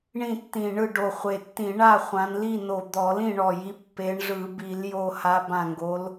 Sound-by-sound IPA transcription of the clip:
ɳĩ˥˨tːĩ˧˩ɳɯ˥˨ɖo˧˩ χʷe˧˩tːĩ˧˩˧ ɳa˥˨χʷã˨˦nli˥˨no˧˩ d̪ɔ˧˩˧lĩ˥˨ɳɔ˧˩ji˨˦ pːe˨˦ɳʐɯ˧˩˧ bi˧˩˧l jo˧˩ha˨˦ bã˧˩ŋɡo˨˦l

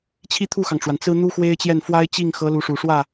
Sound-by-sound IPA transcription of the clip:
t͡ɕʰi˥t̪ʰu˥˩xɑ˩ŋʈ͡ʂwa˩n t͡sɹ̩˥ n̪u˥xwe˥ɪ̯t͡ɕjɛ˥˩n fwa˥ɪ̯t͡ɕi˥˩ŋxɤ˧˥ lu˧˥ʂu˨˩ʂwä˥˩

